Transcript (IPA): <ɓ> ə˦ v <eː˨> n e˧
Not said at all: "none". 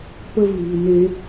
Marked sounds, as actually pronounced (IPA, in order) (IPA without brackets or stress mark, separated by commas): p, iː˨